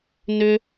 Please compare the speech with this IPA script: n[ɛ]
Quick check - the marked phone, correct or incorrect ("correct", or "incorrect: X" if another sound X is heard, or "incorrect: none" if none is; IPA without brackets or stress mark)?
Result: incorrect: ʏ